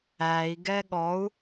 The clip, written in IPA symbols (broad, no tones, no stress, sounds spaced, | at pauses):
æ i̯ ɡ ɛ ɠ ɔ u̯